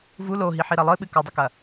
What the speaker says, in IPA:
v u l o ɦ i ħ i ɾ ɐ lˠ ɨ ɓ ɨ k o dˤ ɘ k ɐ

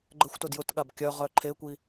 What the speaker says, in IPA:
ɡ͡ǃ ə xʷ t ʊ d j ʊ t ɠ a b kʲ œ ʁ œ ǃʰ e kʷ i

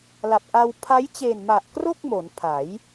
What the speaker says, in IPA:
l a˨˩ p̚ ʔ a˧ w pʰ a˦˥ j t͡ɕ e˨˩ n m a˨˩ ʔ k r o˥˩ k̚ m o˩˦ n pʰ a˩˦ j

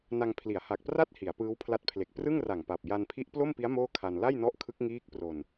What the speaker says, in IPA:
n a˧ ŋ pʰ l i˩˦ a̯ h a˨˩ k̚ p r a˥˩ t̚ h i˩˦ a̯ p ɯː˦˥ w pʰ l a˦˥ t̚ pʰ l e˨˩ k̚ p r ɯ˥˩ ŋ r a˨˩ ŋ p a˨˩ p̚ j a˧ n pʰ i˦˥ ʔ p l o˥˩ m p i˦˥ a̯ m oː˥˩ kʰ a˧ n l a˥˩ j n ɔ˦˥ ʔ kʰ ɯ˦˥ k̚ ŋ iː˦˥ k̚ p r o˧ n

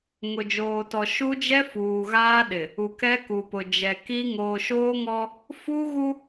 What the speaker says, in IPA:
ŋ ʊ˨ d͡ʒ oː˨ t ɔ˨ ʃ u˦ d͡ʒ ɛ˦ f uː˨ ɣ aː˦ ɗ ɪ˨ | u˨ k ɛ˦ k u˨ p ʊ˨ d͡ʒ ɛ˨ k i˦ ŋ oː˨ ʃ oː˦ ŋ ɔ˦ | f u˦ ɣ u˦

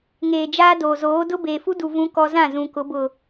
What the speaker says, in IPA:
ŋ eː˨ d͡ʒ aː˦ d oː˨ z oː˨˦ d ʊ˦ b eː˨ f u˦ d u˨ v ũ˦ k ɔ˦ z ã˦˨ z ũ˨ k ʊ˨˦ b ʊ˨

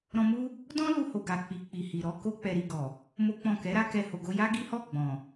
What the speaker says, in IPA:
ɾ ɔ̃˧ m u˦ | d ɔ̃˦ l u˧ h o˨ ɡ a˨ k͡p i˨ k͡p i˨ h i˨ ɾ ɔ˨˦ k o˦ k͡p ɛ˧ ɾ i˧ ɡ ɔ˨ | m o˦ k͡p ɔ̃˦˨ k ɛ˨˦ ɾ a˧ k ɛ˧ h o˨ ɡ o˧ j a˦ ɡ i˦ h ɔ˦˨ ɡ͡b ɔ̃˨

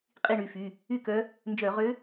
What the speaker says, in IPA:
qʼ i˥˨ ɳ y˩˧˩ f y˩˧˩ | y˥˨ k œ˧˥ | n d͡ʒ œ˧˩˧ ʁ ø˧˥

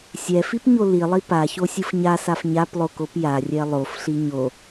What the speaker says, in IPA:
sʲ ɛ f i p ɲ o l i lˠ i p a ç o sʲ ɯ f ɲ a s a f ɲ a p lˠ o k o p j a rʲ ɛ lˠ o f ɬ i ɲ o

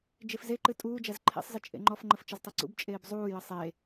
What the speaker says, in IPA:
d͡ʒ e f z e ǃ ɨ tʼ uː d͡ʒ æ z ǃʰ ḛ sˤ z ɨ t͡ʃʼ ḛ ŋ͡ǃ ɔ f ŋ͡ǃ ə f t͡ʃ ə z tˤ ɛ ǀ ṵ b t͡ʃʼ eː b zˤ uː j ə sˤ e

